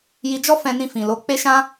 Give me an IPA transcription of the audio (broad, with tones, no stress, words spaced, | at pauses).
ji˧d͡ʒɔ˦fɛ̃˧nĩ˧ fĩ˨lo˧k͡pe˦ʃã˦